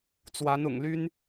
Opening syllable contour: rising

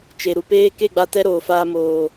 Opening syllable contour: low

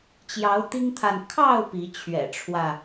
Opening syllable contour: rising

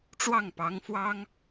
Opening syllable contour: falling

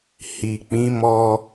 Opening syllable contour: low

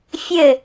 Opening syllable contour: falling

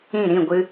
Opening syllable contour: falling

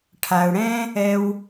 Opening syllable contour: low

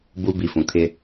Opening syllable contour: high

